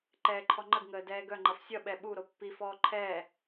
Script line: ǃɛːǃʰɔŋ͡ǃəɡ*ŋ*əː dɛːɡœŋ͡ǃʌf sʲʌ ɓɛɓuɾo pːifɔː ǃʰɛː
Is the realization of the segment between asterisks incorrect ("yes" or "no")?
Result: no